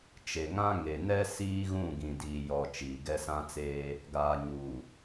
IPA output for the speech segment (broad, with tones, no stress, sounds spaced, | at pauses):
t͡ʃ e˨ ŋ ã˦ ŋ e˨ n ɛ˦ s iː˦ ɣ ũ˦˨ ɡ ĩ˨ d iː˨ j ɔ˨ t͡ʃ iː˨ ɡ ɛ˦ s ã˦ t͡s eː˦ | ɡ aː˨ ɲ uː˨